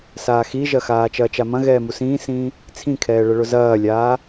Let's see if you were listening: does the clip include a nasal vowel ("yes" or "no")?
yes